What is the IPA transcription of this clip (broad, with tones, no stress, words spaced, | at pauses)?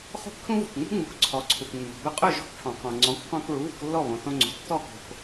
χo̤˥kʈʰũ˥vṳ˩kŋ͡mṳ˥ ŋ͡mu˩˥kǀʰɔ˩˥ǀʰu˩knːɔ̤˩ bɵ˧qʼɵ˥˩ ʒɔ̤˥kʈʰɔ̃˩ qɔ̃˩ ŋ͡ǀɔ̃˩˥kqɔ̃˧k ɭu˩˥βṳ˧klːɔ˥˩ βõ˩θõ˧ŋ͡ǀo̤˩ tːɔ˥˩ko̤˩k